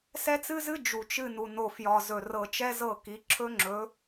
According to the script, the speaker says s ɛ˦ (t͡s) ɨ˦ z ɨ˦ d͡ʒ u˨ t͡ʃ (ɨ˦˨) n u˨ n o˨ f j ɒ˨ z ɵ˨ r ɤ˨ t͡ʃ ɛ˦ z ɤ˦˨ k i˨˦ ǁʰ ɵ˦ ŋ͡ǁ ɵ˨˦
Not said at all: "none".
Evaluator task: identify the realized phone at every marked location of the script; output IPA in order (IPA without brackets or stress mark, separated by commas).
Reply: t͡s, ɨ˦˨